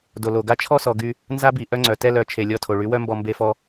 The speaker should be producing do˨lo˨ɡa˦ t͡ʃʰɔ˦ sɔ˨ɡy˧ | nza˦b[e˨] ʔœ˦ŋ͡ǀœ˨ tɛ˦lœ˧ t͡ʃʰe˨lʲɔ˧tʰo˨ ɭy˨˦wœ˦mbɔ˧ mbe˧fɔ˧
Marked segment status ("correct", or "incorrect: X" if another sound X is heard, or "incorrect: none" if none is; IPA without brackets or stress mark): incorrect: i˨